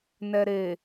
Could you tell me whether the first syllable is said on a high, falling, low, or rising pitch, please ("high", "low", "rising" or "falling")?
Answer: low